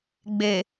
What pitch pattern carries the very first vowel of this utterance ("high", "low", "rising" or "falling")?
low